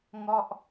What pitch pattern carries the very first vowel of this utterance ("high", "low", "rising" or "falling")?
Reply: falling